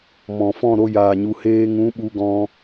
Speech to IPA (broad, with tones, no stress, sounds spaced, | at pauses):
m ɔ̃˨ f ɔ̃˦˨ ɾ o˧ j aː˨ ɲ u˨ h eː˧ ŋ ũ˨˦ ɓ u˧ ɡ ɔ̃˧